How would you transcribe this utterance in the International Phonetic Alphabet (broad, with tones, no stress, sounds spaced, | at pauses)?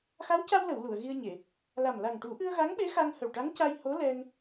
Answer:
x a˧˥ w c a˧ w l ə˨˩˨ w l u˨˩˨ ə̯ ɣ i˧ ə̯ ɲ e˨˩˨ | l a˨˩ m l a˨˩ ŋ ʈ u˨˩˦ ʔ ɨ˧ ə̯ ɣ a˧˥ ŋ ɓ e˧˥ x a˧ ŋ h ə˨˩ w ʈ a˧˥ ŋ c a˧ j h o˧˥ l ɛ˧ ŋ